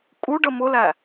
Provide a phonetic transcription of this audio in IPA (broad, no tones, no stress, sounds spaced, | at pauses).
kʼ u ɖ ə m ʊ l æ